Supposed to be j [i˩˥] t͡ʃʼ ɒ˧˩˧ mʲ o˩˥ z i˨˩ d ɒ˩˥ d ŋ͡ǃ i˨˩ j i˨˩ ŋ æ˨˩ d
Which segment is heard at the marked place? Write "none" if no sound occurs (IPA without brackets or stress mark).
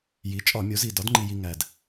i˩˥